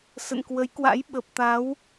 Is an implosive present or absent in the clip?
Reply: present